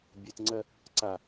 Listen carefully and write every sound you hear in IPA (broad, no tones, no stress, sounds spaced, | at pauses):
bʲ e t ŋ͡ǀ ɜ | ǀ a